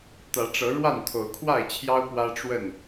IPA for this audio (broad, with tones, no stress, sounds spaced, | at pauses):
t̪ ä˨˦ ʈ͡ʂ ɤ˨˦ ɻ w a˥˨ n t̪ʰ o˨˦ ʊ̯ kʰ w a˥˨ ɪ̯ t͡ɕʰ j ɑ˦ ʊ̯ p w ä˦ ʈ͡ʂ w ə˥˨ n